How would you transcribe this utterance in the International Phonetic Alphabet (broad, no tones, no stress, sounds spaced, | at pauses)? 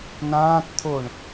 n ãː t t̪ʰ o ɳ